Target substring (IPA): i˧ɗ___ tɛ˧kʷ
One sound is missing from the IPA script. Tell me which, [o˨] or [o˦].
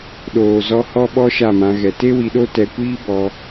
o˦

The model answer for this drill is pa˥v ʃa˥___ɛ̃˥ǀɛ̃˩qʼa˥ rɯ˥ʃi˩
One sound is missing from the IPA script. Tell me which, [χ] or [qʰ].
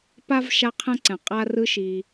qʰ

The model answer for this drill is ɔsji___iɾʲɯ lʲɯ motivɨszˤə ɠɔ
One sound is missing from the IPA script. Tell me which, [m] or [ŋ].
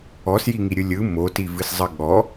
ŋ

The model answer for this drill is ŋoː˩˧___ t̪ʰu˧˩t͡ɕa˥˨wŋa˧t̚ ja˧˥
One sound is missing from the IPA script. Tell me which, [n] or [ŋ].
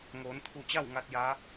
n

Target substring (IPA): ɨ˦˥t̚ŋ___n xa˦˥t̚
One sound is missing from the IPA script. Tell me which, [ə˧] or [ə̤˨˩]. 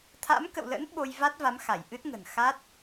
ə̤˨˩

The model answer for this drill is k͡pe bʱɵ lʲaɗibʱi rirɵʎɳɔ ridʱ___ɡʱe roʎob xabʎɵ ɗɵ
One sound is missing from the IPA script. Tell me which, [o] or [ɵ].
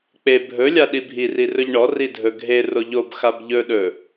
ɵ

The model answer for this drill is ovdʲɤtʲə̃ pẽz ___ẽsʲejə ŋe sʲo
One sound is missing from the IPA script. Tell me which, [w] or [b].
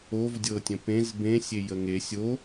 b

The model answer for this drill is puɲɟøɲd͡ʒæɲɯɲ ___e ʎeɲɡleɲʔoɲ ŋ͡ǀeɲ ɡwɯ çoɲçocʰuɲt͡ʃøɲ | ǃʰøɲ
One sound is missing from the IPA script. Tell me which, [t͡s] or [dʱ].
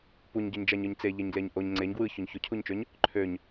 t͡s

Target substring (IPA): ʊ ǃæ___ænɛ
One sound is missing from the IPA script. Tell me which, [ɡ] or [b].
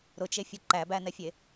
b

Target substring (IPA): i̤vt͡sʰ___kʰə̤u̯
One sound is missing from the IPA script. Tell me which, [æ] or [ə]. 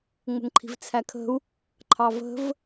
æ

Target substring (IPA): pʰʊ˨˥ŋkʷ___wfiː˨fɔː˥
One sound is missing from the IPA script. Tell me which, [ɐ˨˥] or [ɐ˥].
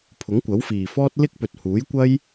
ɐ˨˥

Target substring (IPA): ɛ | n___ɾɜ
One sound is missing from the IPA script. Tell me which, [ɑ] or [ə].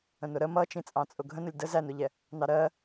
ɑ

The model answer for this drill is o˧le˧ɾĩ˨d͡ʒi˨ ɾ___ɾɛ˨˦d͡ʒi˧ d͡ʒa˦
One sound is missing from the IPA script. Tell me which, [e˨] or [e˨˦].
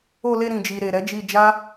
e˨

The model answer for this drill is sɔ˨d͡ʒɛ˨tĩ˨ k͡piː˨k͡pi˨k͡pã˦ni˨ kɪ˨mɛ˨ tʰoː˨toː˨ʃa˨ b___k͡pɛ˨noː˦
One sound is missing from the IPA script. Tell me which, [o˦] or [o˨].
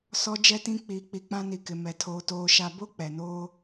o˦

